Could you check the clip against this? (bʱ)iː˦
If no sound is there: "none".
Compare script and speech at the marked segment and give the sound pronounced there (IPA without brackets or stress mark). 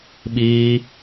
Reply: ɓ